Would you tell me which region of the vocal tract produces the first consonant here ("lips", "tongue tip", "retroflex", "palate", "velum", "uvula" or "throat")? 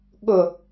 velum